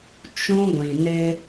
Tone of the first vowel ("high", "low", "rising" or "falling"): high